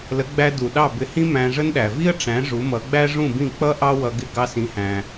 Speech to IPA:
l ə˩˥ ɡ͡b æ˧ d u˩ ɗ ɑ˥˩ b ɪ˧ h ĩ˥ m æ̃˧ ʐ ə˥ n ɗ æ˩ v i˥ ə̯ ʈ͡ʂ æ̃˩˥ ʐ u˩˥ m ʌ˩˥ ɡ͡b æ˥ ʐ ũ˥˩ b ĩ˥˩ k͡p ʌ˥ ʔ ɑ˥ w ʌ˧ ɡ ɪ˥˩ ɡ ɑ˧ s ĩ˩˥ h æ̃˩

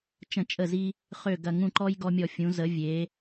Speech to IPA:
t͡ʃ ə̃˧˩˧ t͡ʃʼ ə˧˩ z i˧ | χ ø˧˩ ɡ ɐ˧˩ ŋ ũ˧˩ ǃ ɔ˧ j ɡ ɔ˧ mʲ ɔ˧˩ fʲ ũ˩˧ z ə˩˧ vʲ e˩˧

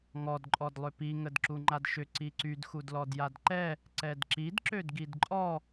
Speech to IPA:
ŋ ɔ d ǃʼ ɔ d lˠ ʏ p i ŋ ə d ǁ u ŋ͡ǃ a d ʃ ʏ ǀ i ǀ y d x u d l ɔ d j a d ǃ ɛ | ǀ ɛ d ǁ i d ǁ ø d ɡ i d ǃʼ ɔ

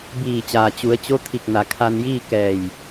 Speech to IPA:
b iː˧˩ t͡ɕ aː˩ t͡ɕ u˩˧ ə̯ t͡ɕ o˧˥ t̪ʰ i˧˩ k̚ n a˩ kʰ a˧ n j iː˥˨ k ɛː˧˩ j

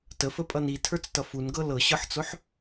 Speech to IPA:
t ə f ə pʼ ʌ n i tʰ ə˞ t͡s t ʌ f u n ɡ ɤ l ɤ ɕ ɤ ħ t͡s ʊ ħ

